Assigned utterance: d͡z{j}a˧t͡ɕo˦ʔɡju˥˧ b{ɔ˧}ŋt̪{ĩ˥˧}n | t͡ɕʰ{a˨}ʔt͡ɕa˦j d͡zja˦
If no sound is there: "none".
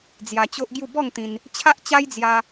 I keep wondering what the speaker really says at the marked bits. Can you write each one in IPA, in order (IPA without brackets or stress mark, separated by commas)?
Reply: j, ɔ˥˧, ĩ˧, a˦